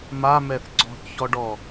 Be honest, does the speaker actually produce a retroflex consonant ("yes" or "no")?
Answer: yes